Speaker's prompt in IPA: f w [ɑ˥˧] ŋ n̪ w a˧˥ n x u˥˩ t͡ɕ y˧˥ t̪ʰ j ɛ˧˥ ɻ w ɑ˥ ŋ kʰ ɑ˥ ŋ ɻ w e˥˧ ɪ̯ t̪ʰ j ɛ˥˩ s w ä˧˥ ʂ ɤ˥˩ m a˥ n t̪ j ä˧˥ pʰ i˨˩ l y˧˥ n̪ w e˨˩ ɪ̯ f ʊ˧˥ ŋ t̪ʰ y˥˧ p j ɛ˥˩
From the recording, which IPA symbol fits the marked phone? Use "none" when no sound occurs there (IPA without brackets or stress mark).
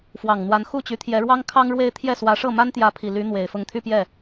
ɑ˨˩